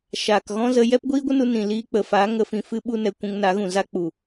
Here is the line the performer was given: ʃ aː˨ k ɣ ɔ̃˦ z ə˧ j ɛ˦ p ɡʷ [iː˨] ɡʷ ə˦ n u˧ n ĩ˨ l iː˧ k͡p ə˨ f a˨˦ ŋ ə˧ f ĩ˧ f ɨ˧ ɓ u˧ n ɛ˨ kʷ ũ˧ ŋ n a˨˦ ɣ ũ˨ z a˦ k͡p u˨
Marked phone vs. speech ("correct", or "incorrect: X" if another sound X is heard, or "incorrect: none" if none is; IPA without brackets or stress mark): incorrect: iː˦